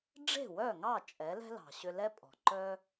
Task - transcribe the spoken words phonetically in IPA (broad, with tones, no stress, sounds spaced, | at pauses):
ɖ͡ʐ e̤˥˩ w œ˥˩ ŋ ɑ˥˩ t͡ʃʼ ɛ˩˥ l ɛ̤˥ l ɑ̤˩ ɕ ʏ˧ l ɛ˥ pʼ ɔ̤˩ ǃ œ˥